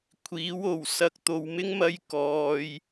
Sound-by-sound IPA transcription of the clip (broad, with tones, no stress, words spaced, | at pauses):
kʷʰiː˨˥w o˨˩w sɐ˧k̚ t̪o˨wmɪ˥ŋ mɐ˥jkɔː˧j